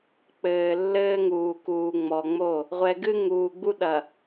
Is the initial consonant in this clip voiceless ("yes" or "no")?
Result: yes